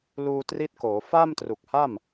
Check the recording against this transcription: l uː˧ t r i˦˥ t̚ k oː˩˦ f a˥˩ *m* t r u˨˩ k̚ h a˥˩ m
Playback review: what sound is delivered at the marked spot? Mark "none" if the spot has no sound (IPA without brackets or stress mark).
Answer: m